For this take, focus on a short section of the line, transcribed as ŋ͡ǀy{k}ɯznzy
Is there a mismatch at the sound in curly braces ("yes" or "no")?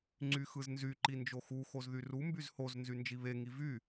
yes